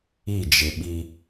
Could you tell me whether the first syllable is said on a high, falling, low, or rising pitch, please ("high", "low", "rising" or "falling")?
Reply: falling